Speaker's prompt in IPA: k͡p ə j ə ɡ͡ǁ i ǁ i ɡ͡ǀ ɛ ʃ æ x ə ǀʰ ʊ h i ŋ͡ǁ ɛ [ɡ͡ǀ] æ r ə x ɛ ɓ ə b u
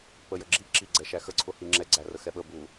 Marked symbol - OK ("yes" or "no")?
yes